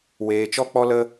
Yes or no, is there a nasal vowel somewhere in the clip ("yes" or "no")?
no